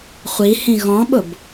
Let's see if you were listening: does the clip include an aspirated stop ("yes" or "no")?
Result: no